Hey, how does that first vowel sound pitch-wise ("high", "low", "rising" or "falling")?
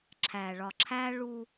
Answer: low